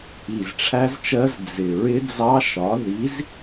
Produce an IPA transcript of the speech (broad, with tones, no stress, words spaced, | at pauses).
i˨˩zʈ͡ʂʰæ˦˥zt͡ʃɜ˦˥z d͡zɪ˨˩ ɹɪ˦˥d͡zɑ˦˥ʃɒ˨˥ ði˨˥z